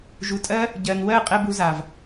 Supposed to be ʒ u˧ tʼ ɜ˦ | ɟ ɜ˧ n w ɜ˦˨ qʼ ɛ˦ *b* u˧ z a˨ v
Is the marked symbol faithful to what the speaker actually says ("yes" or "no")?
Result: yes